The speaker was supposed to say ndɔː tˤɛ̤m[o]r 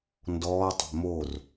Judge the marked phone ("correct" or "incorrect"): correct